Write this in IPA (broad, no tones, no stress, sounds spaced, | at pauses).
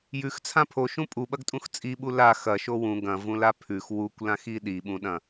j ʉ x t͡sʰ ã pʰ o ʃ ũ pʼ u ɓ ɐ ɡ tʼ ũ x t͡sʼ i ɓ u l a x ɐ ʃ o w ũ ɡ ɐ̃ v ũ l a pʰ ʉ x w u kʷ l ã x i ɗ i ɓ ũ ɗ ɐ̃